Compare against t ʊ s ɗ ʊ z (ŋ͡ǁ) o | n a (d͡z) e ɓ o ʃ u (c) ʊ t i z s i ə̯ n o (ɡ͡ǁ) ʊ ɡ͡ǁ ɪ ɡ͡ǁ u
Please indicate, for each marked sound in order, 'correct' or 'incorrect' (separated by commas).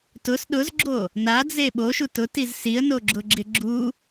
incorrect, correct, incorrect, correct